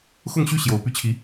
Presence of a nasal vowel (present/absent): absent